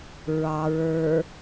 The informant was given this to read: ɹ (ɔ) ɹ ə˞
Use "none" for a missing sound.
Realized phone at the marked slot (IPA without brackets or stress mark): ɑ